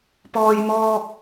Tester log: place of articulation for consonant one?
labial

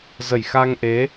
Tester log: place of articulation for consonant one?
alveolar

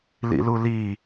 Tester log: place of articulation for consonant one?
alveolar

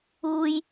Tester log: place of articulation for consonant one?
palatal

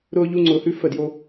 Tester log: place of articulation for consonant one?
alveolar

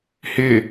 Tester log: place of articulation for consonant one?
glottal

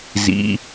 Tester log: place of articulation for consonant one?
alveolar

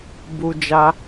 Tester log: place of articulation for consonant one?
labial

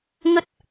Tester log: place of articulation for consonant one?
velar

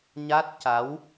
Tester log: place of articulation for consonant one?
palatal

